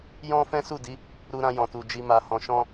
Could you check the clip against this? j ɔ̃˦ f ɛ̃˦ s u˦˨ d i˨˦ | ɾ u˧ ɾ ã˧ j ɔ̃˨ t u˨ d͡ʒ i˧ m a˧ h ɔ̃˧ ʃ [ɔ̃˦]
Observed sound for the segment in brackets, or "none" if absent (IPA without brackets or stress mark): ɔ̃˦